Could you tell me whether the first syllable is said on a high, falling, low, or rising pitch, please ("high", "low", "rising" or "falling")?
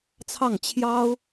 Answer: falling